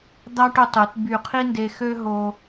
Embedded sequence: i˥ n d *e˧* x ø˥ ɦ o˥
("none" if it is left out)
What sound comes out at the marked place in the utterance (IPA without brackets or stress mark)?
e˧